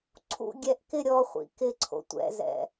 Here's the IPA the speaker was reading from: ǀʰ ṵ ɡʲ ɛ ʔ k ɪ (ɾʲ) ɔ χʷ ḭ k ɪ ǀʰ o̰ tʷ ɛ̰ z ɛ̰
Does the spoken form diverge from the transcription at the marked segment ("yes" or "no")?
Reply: no